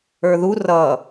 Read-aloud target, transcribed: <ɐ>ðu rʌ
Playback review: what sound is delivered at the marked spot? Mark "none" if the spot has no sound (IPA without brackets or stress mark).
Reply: ə˞